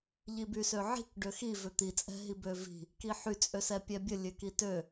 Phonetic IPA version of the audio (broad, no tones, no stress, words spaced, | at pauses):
ʎibysøʕi̤k ɖøxi vʏt̪i t͡sʼɛ̤ɦibøvi̤ | kiħy t͡sʼøsɛpʲɛbʲə lʲøkitø